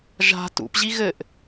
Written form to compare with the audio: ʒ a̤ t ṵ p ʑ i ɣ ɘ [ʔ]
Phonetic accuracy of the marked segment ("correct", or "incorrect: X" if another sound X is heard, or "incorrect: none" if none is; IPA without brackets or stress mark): correct